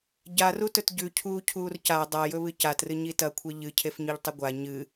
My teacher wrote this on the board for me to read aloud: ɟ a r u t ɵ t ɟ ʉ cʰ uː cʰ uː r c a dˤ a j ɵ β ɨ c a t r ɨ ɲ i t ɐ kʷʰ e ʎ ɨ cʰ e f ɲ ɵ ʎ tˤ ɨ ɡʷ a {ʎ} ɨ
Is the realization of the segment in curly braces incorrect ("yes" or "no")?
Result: yes